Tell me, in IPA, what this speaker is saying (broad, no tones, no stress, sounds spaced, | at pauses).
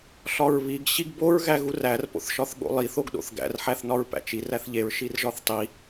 ɬ ɒ ɹ β i ɡ ɕ i ɡ b o ɹ ɣ æ ɣ u r æ r p o̰ θ ʃ ɒ θ ɠ o̰ lˠ i θ o ɡ ɗ o̰ θ ɡ æ̰ r ħ æ θ n ɒ ɹ p æ̰ t͡ʃ i r æ θ ʎ e ɹ ʃ i r ʒ ɒ θ tˤ i